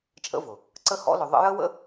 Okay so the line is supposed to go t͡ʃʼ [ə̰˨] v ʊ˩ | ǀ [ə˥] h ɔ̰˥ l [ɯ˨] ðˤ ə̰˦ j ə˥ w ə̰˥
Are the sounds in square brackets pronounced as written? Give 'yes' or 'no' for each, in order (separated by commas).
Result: no, yes, no